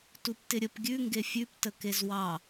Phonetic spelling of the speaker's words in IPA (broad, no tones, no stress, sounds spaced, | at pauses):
t u p t ɪ ɾʲ ə p ɡʲ ʉ ŋ ɡ e fʲ ʉ p t ə k e z w ɑ